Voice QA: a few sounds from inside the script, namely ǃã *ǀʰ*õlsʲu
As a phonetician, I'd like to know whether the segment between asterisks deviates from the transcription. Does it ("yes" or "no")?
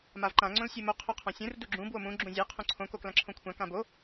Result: yes